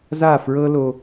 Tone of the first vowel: falling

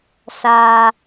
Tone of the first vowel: low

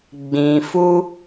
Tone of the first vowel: low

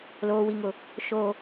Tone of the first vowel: high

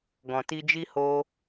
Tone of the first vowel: low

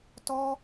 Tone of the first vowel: high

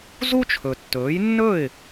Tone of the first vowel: high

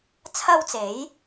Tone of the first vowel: high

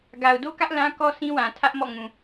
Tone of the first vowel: low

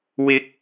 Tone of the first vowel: rising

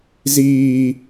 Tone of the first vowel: high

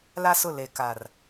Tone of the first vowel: high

